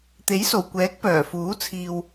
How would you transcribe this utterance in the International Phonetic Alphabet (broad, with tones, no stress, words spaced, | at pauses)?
t̪e˨˥jso˨˩wkʷɛː˨˥k̚ pœː˨˩fuː˨˥ t͡sʰiː˧w